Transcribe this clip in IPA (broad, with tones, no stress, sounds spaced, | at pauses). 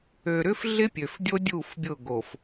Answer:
ø˨ ɾ ʏ˦ f ɮ ɪ˦ pʲ ø˨ f dʲ o˦ dʲ u˦˨ f bʲ ʊ˦˨ ɡ o˨ f